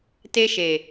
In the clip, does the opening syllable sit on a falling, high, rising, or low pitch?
high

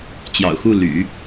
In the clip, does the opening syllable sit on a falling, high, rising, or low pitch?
low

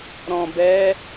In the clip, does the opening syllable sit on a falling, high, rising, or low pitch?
low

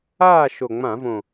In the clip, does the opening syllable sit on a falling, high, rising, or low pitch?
falling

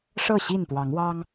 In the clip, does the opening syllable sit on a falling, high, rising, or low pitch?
falling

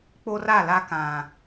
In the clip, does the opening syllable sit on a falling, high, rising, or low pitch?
high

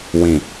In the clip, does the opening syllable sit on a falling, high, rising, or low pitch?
low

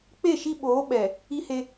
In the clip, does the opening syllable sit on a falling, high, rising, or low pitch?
falling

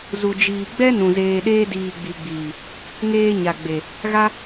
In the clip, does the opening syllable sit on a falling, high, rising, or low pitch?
low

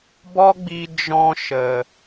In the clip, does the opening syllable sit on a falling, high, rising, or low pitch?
high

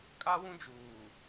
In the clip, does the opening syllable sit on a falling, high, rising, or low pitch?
high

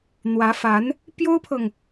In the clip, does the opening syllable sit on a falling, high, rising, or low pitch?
rising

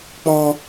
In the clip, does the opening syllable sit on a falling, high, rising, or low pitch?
high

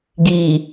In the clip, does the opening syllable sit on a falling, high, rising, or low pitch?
low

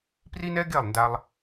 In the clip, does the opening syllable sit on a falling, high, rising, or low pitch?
high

